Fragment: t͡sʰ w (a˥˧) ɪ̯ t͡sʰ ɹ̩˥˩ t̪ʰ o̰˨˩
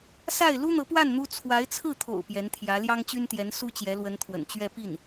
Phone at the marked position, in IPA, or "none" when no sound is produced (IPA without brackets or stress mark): a˧˥